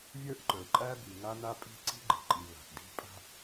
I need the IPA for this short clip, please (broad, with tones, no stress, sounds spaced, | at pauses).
vʲ ə˞˦ ʔ ǃ ə˞˨ ǃʼ æ˦ b i˨ ŋ a˦ n a˦ pʼ i̤˦ ǀ i̤˦ ɡ͡ǃ i̤˨ ǃʼ i˨ β a̤˨ ʔ d i̤˦ pʼ a̤˦